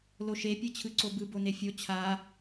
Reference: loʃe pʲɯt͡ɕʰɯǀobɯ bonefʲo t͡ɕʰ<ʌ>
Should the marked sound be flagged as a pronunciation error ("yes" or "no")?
yes